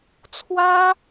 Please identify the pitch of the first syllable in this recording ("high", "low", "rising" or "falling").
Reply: high